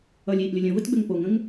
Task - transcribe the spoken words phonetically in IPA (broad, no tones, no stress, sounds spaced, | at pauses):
ʌ lʲ iː ʔ lʲ ʌ lʲ ə̃ v ə t ɡ͡b ʏ ŋ p o ŋ ə̃ ŋ